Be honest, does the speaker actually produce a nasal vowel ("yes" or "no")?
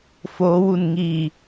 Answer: no